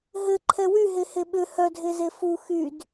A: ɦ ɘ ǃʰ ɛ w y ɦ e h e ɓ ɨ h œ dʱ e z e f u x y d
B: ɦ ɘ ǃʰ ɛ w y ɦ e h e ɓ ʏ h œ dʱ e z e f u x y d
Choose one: B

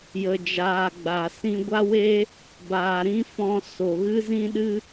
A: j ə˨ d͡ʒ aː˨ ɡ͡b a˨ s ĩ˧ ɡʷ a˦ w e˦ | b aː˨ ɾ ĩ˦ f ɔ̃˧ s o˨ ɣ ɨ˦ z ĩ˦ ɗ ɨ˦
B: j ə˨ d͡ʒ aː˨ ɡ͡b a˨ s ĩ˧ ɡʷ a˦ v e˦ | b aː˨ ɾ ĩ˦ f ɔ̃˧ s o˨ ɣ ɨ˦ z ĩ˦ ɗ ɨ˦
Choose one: A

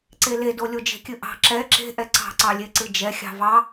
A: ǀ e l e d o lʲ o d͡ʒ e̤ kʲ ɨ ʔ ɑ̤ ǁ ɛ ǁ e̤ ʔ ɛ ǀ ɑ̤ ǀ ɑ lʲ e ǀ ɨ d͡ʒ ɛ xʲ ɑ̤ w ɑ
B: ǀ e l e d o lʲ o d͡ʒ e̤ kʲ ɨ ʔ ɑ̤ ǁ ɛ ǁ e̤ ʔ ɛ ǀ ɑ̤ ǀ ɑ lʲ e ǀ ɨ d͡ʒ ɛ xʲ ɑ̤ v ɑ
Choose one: B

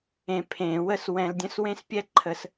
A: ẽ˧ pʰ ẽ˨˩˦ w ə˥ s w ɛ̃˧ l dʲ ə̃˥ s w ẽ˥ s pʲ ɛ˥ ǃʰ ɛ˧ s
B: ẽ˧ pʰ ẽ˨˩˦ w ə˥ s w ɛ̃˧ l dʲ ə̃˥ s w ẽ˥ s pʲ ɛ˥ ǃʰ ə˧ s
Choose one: B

